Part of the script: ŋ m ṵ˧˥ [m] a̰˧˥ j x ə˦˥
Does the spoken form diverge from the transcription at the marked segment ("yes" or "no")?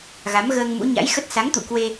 yes